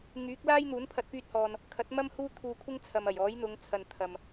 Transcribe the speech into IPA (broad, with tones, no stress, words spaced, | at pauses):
ŋyː˨˥k̚ laː˥jn̪uː˨˥npʰɐ˧t̚ pyː˧t̚hɔː˨n | kʰɐ˨˥t̚mɐ˥m huː˥t̪ʰuː˧kʷʰɪ˥ŋ t͡sʰɐ˨mɐ˨˩j ɔː˨˥jn̪ʊ˨˧ŋt͡sʰɐ˨n t̪ʰɐ˨m